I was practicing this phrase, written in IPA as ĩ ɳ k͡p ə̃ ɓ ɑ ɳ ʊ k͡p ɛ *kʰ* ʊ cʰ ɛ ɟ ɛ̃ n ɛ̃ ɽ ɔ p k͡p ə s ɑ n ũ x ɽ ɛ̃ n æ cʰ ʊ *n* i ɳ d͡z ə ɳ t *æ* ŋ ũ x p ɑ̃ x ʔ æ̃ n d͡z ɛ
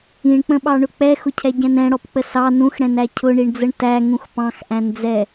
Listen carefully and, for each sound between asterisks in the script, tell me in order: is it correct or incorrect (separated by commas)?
incorrect, incorrect, correct